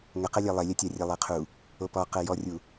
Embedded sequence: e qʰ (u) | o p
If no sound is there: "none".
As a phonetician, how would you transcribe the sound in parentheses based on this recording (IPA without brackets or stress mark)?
u